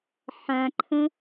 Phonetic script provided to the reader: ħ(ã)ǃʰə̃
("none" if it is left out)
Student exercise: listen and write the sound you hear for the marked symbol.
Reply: ã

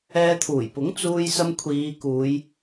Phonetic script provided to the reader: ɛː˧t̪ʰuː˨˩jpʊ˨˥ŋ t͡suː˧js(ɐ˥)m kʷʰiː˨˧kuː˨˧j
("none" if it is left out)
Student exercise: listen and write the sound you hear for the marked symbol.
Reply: ɐ˧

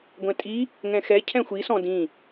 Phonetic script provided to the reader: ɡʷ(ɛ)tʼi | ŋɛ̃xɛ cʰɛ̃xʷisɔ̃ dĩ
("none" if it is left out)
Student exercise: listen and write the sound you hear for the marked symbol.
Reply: ɛ̃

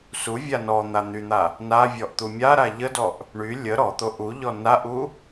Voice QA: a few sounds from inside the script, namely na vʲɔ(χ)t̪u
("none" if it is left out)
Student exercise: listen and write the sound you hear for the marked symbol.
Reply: ʔ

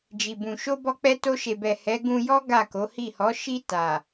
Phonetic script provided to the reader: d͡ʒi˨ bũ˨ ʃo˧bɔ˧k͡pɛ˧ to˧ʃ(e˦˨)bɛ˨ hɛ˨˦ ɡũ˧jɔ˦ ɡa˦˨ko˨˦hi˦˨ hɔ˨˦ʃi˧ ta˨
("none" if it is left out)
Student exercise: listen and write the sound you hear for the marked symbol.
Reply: e˨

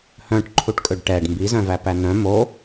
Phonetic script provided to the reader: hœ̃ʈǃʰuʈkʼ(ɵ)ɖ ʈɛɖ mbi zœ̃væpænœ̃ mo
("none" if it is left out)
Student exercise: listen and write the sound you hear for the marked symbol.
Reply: ø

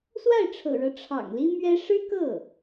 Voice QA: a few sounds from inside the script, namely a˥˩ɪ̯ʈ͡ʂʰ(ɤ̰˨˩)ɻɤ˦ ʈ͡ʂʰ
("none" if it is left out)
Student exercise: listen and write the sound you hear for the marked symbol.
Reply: ɤ̰˨˩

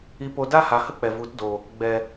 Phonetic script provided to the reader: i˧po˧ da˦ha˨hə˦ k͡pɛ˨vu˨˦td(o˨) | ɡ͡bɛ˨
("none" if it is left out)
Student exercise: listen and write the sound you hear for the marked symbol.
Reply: oː˨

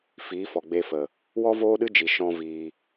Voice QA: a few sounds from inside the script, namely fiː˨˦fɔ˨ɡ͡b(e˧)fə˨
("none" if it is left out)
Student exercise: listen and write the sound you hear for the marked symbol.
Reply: e˧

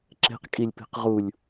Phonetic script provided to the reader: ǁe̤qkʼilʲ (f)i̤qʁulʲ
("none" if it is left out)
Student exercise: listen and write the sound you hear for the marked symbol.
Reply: p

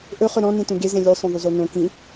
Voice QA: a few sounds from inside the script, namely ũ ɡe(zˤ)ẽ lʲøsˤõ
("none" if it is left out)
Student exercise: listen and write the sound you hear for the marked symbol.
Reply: z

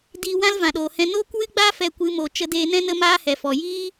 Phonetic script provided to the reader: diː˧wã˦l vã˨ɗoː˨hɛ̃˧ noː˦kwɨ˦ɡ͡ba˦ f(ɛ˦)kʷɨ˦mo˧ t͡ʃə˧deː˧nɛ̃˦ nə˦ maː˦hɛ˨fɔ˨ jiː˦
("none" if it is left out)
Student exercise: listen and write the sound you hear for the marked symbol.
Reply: ɛ˦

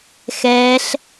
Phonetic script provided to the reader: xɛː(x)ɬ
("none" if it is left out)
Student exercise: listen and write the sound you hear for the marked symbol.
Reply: none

